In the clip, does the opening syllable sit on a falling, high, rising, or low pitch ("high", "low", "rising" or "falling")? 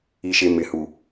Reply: low